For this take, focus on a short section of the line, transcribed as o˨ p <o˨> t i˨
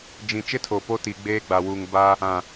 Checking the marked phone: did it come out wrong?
yes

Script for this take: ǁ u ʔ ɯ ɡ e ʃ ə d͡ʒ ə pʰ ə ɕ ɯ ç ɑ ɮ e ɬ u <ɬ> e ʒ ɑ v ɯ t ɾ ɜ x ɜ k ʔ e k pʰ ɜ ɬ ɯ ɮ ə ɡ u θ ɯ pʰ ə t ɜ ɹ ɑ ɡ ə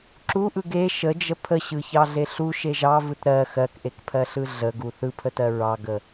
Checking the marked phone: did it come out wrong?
yes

